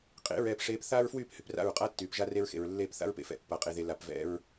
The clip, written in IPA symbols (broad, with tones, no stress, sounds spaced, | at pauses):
qʼ ḛ˨˦ ɹ ɛː˨ p ʂ eː˨ p θ aː˦ ɹ f w yː˦˨ p h y˨ p r a̰˦˨ ɹ qʼ a˦ tː yː˨ p ʒ a˦ r e˦ ɹ x ḛ˨ ɹ lː eː˦˨ p θ a̰˦ ɹ p ḛ˨ f ɛ̰˨ pː a˨ qʼ e˨ ð e˨ l a˨ p v ɛ̰˦ ɹ